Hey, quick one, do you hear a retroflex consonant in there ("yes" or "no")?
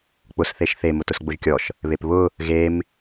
no